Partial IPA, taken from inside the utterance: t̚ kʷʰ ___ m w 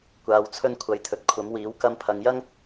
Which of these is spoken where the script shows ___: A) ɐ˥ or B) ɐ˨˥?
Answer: B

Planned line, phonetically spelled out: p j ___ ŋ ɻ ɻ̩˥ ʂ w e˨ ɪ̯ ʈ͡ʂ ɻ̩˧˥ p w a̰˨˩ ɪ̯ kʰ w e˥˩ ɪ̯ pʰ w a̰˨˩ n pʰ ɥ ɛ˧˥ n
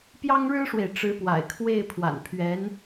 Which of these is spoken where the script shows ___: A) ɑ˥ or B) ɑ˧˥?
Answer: A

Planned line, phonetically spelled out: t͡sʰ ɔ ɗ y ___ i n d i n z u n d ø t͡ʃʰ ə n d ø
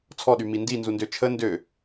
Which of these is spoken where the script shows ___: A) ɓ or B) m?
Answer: B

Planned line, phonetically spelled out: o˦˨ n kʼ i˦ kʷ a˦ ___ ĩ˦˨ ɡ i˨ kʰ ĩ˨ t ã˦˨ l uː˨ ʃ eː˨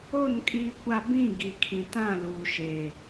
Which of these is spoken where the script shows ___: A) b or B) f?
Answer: A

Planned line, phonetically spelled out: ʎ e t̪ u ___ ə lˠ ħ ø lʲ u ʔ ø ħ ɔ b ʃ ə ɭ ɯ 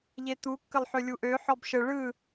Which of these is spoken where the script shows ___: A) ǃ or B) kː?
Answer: B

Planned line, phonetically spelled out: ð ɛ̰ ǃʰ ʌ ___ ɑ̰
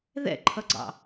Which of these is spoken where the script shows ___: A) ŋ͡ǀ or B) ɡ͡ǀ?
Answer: B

